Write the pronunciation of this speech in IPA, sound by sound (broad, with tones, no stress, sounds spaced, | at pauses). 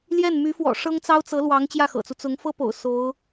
l j ɛ˥˩ n m y˧˥ f w ɔ̰˨˩ ʂ ɤ˥ ŋ t͡s ɑ˥ ʊ̯ t͡s ɤ˧˥ l w ɑ˧˥ ŋ t͡ɕ j ä˥˩ x ɤ̰˨˩ t͡s u˦ t͡s ʊ˧˥ ŋ f ɤ˥ p o̰˨˩ ʊ̯ s o˧˥ ʊ̯